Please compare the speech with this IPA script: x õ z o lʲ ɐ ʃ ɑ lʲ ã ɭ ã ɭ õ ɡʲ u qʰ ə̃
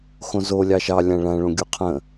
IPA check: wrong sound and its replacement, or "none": ɐ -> ɑ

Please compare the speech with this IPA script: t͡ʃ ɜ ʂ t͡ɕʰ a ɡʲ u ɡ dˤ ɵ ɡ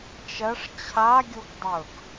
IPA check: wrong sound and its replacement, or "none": none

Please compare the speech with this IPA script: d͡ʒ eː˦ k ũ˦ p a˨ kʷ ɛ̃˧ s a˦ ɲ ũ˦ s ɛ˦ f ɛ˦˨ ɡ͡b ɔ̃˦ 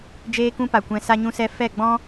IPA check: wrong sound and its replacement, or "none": none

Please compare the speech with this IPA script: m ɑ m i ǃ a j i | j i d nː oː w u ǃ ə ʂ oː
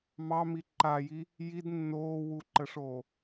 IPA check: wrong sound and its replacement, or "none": none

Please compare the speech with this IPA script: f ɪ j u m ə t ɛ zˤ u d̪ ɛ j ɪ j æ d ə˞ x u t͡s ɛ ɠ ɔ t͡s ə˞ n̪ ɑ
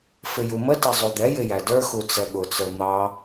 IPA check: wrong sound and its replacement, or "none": ɔ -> ʊ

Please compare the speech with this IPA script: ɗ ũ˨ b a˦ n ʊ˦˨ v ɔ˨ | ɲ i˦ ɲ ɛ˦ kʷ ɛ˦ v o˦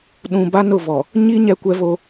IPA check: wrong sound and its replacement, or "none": none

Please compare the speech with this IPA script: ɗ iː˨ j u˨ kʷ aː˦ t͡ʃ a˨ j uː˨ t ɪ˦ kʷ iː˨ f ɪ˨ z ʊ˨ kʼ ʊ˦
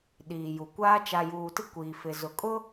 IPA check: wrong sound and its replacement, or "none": none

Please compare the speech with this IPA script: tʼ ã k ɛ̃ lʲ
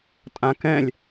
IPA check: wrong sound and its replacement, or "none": none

